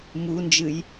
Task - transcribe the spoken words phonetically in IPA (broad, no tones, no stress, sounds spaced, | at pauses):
m u n d͡ʒ ɨ j